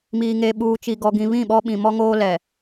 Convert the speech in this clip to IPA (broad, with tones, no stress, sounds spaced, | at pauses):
m iː˨ ŋ e˨ ɓ uː˨ t͡ʃ i˨ ɡ ɔ˨ ɡ ĩ˨ β ĩ˦˨ ɓ ɔ˦ ɓ ĩ˨ m ɔ˦ ŋ oː˦ l ɛ˨